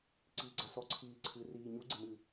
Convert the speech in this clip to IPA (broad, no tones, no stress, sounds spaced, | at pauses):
ǀ iː ɡ͡ǀ a s ɔ ǀʰ iː ǀʰ ɨ r iː ɲ u ɡ͡ǀ e m ɨ